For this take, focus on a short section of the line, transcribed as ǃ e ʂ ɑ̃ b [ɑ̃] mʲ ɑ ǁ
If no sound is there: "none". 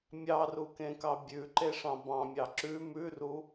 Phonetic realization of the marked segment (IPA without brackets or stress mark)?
ɑ̃